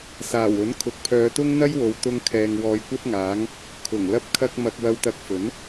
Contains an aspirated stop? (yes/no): yes